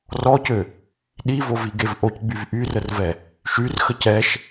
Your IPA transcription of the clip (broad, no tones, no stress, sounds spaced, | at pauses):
r ɔ c ø | ɗ i v o v i ɡ e v ʔ o c ɡ͡b y v ʔ y r ə r v ɛ | ʃ y r x ə c ɛ ʃ